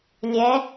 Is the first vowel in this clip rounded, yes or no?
no